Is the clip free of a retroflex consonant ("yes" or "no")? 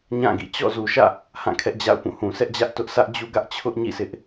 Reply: yes